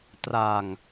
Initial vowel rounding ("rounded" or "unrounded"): unrounded